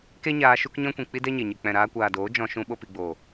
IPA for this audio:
k e˦ ɲ aː˧ ʃ u˦ k ɲ ɔ̃˦ kʷ ĩ˨ k͡p i˦ d ɛ˦ ɲ e˨ ɲ ɨ˨ k͡p ɛ̃˨ ɾ aː˧ kʷ aː˨ d oː˨˦ d͡ʒ ɔ̃˧ ʃ ũ˧ ɓ o˦ p i˧ ɡ͡b oː˨

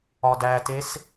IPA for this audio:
ɒ d æ t e s

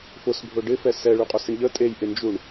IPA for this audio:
f ʊ s bʱ ʊ ɖ ɪ f ɛ s ɛ ɭ y qʼ ʊ s ɪ ɳ ʎ ə tʼ e j ʔ ɪ n d͡ʒ u ɳ

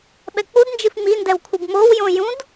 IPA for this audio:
ɓ ɛ k͡p u d n d͡ʒ ɨ f m i n d ɛ w kʷʰ ɨ b m o w j õ j ũ d

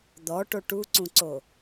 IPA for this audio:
d̪ ɔ ʈ o ʈ u ǀ ũ ǀ o

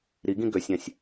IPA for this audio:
ɾ i ɡ ĩ ɡ ø sʲ ã sʲ

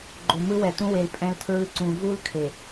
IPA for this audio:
ɡ͡ǃ o˨ m ɯ˦ w ɛ˨ t ũ˦ w e˨ l pʼ ɛ̃˦ l tʰ ɹ ɯ˦ ǀ ũ˨ v u˦ l kʰ e˨

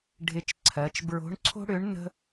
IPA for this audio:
ɖʱ ɪ˧˥ t͡ʃ ǀʰ ɜ˩˧ t͡ʃ b ɹ o̤˧˥ ɳ ǀʰ o̤˥ ɽ ʏ˧˥ ɳ n ə̤˥

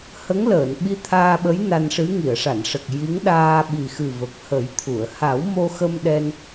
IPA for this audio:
h ə˧˥ ŋ l əː˨˩˨ n ɓ i˧ t̪ʰ aː˧ ɓ ə˧˥ j n a˧ n ʂ ɨ˧˥ ŋ i˨˩˨ ə̯ ʂ a˨˩˨ n ʂ ə˨˩ k̚ j i˧˥ ŋ ɗ aː˧ ɓ i˨˩ x ɨ˨˩ v ə˨˩ k̚ h ə˨˩˦ j t̪ʰ u˨˩˨ ə̯ h a˨˩˦ w m o˧ x ə˧ m ɗ ɛ˧ n

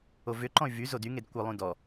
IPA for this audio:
o v ʏ ǃ ɔ̃ y̯ v y z o d y ŋ e d kʷ ə lˠ ũ d ɔ

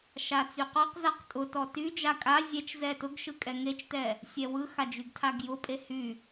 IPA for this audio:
ʃ a t͡s y q ɔ q z a q tʼ ʊ t ɔ t y d͡ʒ a kʼ a zʲ ɛ t͡ʃ z ɛ t ʊ ɡ ʃ ɯ kʼ ɛ ŋ e t͡ʃ t ɛ | sʲ ɛ w ɯ x a d͡ʒ y ɡ tʰ a ɡ j ʊ pʼ e h y

